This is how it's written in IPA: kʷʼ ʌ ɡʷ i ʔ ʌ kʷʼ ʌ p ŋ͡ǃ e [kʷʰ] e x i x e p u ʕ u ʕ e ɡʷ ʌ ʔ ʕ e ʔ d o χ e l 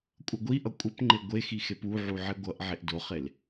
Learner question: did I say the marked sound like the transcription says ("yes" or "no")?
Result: no